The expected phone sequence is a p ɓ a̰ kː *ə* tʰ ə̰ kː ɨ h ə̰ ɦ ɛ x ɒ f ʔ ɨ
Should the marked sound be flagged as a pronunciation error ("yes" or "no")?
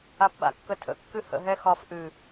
no